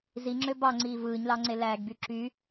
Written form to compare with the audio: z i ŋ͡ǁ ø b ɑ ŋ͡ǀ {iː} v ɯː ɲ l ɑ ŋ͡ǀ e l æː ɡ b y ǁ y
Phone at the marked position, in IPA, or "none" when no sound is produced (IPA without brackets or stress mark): iː